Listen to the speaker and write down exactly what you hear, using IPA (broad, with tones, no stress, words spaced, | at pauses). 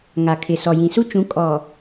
ŋa˨kʰɪ˨ sɔ˨jĩ˨su˦ t͡ʃũ˨˦ kʼɔ˨